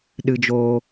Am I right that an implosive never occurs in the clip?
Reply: no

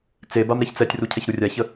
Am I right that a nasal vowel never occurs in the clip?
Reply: yes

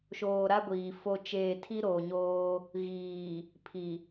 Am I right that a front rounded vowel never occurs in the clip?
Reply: yes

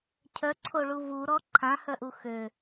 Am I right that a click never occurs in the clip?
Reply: no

